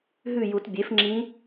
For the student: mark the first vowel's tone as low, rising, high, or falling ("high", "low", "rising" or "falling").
falling